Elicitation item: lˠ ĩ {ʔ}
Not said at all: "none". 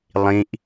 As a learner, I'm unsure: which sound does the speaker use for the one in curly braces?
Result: ʔ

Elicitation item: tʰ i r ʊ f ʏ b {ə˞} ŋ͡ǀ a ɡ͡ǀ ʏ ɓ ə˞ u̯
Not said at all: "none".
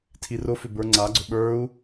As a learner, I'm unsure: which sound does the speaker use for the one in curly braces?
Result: ə˞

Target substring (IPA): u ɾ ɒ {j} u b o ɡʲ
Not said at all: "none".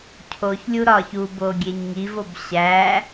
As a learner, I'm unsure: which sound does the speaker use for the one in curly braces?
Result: ç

